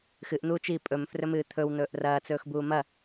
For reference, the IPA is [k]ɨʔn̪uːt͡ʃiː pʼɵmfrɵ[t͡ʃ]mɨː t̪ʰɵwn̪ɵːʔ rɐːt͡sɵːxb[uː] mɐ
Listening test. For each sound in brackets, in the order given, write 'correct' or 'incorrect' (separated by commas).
incorrect, incorrect, correct